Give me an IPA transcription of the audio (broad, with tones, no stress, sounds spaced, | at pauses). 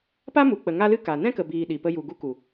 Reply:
p a˦ m u˨ k͡p ə˨ ŋ a˦ l ɨ˦ k a˨ n ɛ̃˦ k ə˨ b iː˨ ɗ i˨ p ə˧ j u˨ ɡ u˧ k u˨